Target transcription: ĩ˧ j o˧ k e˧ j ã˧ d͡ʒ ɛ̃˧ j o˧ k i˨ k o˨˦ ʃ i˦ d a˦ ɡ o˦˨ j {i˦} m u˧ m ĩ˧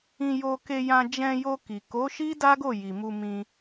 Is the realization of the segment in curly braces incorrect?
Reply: yes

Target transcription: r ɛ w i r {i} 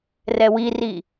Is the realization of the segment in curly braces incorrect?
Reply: no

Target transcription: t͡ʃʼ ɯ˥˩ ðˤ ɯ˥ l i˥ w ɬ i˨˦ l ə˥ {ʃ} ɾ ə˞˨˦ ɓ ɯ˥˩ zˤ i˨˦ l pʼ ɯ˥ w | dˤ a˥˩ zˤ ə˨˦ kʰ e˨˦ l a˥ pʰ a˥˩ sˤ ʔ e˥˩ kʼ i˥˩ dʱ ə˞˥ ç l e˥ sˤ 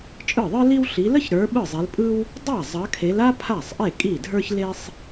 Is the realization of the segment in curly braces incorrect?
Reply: yes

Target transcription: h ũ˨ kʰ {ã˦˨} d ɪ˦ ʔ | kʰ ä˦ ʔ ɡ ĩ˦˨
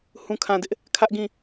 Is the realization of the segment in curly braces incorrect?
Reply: yes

